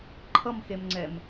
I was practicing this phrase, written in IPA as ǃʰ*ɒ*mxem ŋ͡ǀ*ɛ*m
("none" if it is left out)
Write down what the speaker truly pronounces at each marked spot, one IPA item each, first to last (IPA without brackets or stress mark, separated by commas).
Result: ʌ, ɛ